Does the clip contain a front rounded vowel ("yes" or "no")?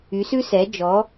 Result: yes